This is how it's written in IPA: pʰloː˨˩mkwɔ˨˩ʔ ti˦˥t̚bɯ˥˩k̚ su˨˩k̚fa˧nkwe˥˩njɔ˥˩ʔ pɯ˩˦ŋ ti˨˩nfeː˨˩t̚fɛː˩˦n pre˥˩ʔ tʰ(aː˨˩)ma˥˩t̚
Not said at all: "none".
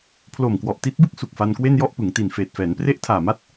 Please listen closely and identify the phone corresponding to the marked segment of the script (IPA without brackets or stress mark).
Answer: aː˨˩